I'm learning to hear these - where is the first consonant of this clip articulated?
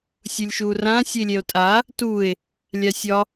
tongue tip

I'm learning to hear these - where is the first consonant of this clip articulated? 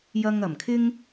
palate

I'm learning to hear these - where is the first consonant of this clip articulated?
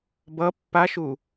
lips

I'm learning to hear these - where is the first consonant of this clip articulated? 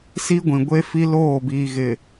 tongue tip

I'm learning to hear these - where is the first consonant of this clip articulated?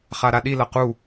uvula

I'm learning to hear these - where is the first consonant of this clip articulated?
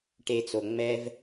retroflex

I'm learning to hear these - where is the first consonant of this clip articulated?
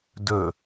tongue tip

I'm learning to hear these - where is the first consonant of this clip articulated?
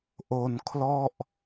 throat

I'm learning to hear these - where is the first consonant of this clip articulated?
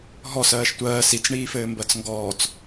throat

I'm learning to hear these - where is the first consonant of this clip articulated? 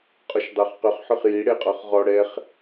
uvula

